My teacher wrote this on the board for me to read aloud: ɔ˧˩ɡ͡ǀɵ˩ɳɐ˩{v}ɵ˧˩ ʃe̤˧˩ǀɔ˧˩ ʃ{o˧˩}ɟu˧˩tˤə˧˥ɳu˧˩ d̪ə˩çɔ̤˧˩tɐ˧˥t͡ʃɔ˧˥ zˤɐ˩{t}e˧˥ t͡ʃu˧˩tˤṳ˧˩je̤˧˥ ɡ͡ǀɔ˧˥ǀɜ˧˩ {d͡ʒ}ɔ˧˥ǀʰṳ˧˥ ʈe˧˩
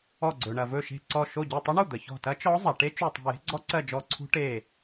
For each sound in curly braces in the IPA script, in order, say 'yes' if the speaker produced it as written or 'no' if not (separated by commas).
yes, yes, no, yes